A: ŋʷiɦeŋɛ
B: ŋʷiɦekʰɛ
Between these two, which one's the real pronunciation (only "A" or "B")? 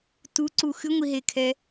B